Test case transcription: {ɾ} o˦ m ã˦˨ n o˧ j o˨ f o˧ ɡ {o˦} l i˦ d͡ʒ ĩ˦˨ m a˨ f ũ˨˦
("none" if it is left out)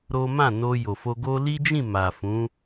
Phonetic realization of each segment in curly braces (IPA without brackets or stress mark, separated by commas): ɾ, o˦